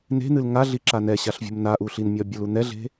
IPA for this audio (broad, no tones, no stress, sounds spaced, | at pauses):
n e̤ n̪ ɨ l ŋ a ɮ i ǁ a n ɛ ɕ a ɬ vʲ ṳ m n a ʔ u ɬ i n mʲ ɒ bʲ ə l u n̪ ɛ ɮ e̤